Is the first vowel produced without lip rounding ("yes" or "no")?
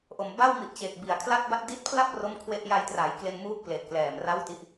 no